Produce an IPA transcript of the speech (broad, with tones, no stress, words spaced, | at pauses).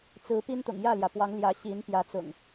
t͡sɹ̩˨˦pi˦n t̪ʊ̰˨˩ŋjä˥˨ljä˩pwɑ˨˦ŋ ljä˨˦ɕi˨˦npjä˨˦ t͡sʊ̰˨˩ŋ